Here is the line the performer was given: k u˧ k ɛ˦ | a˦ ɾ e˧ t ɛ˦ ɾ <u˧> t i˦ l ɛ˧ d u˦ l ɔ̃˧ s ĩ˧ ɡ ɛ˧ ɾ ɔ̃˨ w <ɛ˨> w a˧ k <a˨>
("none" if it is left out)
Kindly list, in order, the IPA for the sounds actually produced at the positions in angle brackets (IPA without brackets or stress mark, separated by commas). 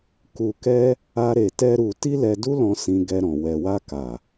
u˧, ɛ˨, a˨